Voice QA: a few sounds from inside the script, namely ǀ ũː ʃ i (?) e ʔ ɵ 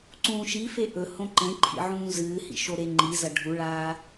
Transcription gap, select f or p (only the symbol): f